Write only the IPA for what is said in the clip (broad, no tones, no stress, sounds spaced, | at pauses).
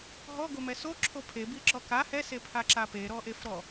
ɦ ɔ ɡ o m ɛ s o ǁʰ o pʰ e b i ǁ ɔ k a h ɛ s e pʰ a ǁ a p e ɾ ɔ ʔ e f ɾ ɔ